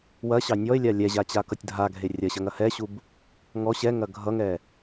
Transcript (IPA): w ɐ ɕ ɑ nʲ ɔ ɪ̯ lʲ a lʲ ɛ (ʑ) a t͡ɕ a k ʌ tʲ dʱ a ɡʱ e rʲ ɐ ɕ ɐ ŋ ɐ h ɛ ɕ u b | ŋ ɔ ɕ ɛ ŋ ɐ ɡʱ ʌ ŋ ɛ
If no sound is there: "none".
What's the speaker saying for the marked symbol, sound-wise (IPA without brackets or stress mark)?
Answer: ʑ